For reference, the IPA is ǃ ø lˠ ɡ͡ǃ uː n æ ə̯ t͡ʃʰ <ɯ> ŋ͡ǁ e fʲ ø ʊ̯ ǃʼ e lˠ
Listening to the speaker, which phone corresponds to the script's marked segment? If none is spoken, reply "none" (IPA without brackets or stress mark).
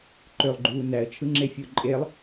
ɯ